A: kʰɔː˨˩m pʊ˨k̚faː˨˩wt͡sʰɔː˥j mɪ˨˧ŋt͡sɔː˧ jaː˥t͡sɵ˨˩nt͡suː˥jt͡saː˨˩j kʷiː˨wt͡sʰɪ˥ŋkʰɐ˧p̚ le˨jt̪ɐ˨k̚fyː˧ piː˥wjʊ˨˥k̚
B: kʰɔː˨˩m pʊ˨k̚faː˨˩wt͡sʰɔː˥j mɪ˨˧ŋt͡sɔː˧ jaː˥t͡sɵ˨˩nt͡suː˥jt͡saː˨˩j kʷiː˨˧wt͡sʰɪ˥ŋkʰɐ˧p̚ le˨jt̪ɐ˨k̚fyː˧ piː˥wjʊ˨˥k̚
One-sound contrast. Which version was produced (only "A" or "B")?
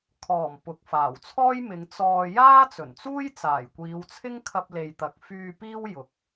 B